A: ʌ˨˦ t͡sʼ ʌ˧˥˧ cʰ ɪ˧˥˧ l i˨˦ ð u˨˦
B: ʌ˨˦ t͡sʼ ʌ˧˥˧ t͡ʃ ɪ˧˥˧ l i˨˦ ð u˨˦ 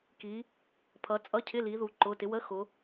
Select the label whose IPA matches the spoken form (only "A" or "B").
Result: A